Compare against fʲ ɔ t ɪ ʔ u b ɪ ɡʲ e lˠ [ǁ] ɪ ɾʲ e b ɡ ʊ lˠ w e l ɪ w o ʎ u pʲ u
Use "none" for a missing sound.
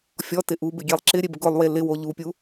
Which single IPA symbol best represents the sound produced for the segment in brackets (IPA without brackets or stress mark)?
ǁ